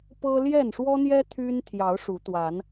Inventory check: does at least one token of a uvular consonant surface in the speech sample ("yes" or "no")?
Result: no